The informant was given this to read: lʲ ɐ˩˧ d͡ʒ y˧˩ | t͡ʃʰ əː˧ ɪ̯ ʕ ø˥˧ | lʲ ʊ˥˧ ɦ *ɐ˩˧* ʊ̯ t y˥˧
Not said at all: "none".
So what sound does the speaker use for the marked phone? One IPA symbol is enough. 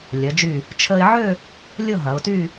ɐ˩˧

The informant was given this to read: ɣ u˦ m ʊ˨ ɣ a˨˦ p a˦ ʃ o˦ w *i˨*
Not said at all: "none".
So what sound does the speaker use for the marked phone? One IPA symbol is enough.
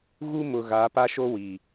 i˨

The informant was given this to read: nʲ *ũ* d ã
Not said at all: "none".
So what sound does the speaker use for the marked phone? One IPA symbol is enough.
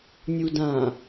u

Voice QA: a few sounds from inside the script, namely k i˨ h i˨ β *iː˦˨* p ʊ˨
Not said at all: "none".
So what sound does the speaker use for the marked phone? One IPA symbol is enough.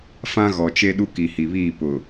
iː˦˨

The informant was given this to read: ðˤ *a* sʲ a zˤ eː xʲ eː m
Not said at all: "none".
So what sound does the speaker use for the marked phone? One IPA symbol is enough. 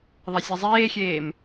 a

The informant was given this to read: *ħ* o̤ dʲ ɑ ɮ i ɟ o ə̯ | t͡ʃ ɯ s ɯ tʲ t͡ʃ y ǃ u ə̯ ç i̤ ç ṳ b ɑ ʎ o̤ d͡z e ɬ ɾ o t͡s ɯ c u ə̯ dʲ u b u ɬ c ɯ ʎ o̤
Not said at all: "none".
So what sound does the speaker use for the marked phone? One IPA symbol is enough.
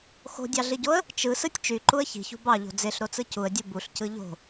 x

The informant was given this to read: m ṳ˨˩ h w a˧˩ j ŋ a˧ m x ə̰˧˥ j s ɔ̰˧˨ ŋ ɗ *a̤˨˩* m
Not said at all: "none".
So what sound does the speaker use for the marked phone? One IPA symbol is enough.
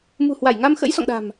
a̤˨˩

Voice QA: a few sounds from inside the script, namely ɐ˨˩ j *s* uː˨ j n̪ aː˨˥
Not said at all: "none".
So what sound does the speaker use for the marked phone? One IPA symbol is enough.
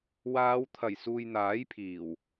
s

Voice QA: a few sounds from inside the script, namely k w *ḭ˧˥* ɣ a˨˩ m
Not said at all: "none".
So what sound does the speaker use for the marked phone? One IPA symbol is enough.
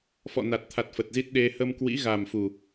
ḭ˧˥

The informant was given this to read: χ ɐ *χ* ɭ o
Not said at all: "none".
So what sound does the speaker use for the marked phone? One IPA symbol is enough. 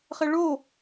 none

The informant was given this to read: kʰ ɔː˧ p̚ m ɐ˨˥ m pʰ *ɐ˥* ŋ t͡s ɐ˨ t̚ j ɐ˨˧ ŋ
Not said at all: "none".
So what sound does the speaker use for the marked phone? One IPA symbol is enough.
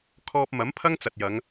ɐ˥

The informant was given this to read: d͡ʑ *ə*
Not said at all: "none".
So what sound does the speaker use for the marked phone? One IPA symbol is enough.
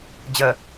ə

